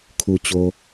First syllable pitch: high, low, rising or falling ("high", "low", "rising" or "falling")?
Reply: low